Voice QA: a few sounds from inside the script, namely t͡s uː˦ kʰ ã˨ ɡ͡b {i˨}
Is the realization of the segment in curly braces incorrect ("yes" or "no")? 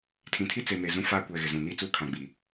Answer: no